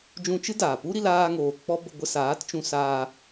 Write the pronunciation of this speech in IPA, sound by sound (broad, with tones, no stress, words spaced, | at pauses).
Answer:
d͡ʒũ˧t͡ʃɨ˦ daː˨ pu˦ɾi˧l aː˧ŋoː˨ k͡pɔ˦ bə˧ɡʷə˧saː˨˦tt͡ʃũ˧ saː˧